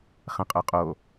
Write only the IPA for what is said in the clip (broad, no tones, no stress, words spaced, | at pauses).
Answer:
χɛ̃qʼœqʼo